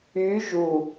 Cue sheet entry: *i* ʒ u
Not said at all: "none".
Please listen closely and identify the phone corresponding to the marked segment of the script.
y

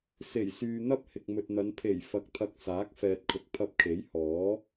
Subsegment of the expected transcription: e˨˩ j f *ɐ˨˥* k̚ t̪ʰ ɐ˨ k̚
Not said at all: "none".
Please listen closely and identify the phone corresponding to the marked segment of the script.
ɐ˨˥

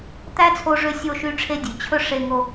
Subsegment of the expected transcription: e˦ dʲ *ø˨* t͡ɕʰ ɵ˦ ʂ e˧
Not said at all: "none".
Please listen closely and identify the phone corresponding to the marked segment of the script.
ʉ˨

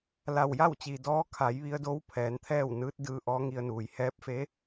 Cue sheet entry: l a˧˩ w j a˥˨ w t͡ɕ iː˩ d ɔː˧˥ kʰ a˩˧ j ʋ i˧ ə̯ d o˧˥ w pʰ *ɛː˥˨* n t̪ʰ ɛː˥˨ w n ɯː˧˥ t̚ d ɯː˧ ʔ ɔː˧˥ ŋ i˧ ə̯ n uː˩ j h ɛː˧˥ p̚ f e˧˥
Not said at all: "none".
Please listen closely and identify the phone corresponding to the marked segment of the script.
ɛː˩˧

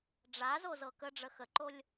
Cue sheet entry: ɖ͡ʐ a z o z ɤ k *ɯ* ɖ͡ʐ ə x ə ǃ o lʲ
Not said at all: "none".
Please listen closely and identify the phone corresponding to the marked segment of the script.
ə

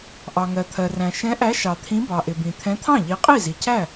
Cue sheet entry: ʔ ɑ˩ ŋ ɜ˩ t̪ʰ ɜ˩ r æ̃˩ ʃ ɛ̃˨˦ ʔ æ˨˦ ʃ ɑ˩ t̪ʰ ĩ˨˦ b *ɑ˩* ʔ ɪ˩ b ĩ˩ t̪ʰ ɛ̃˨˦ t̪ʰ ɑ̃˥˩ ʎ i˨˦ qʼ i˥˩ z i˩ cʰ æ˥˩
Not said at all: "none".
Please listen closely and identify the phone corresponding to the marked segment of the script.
ɑ˩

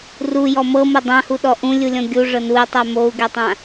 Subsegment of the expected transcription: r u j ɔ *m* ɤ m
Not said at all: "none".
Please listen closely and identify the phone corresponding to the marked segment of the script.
m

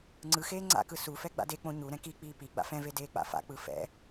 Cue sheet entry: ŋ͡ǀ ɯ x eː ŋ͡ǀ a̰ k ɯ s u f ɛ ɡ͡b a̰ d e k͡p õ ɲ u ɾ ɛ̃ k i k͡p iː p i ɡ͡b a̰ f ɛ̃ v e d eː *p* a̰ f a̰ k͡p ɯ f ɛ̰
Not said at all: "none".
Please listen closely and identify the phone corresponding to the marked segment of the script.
k͡p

